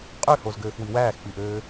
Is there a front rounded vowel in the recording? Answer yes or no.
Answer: yes